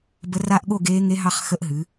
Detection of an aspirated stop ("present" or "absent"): absent